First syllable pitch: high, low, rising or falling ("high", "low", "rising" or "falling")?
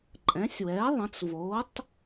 rising